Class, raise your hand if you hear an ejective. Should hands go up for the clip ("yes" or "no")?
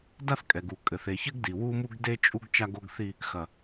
yes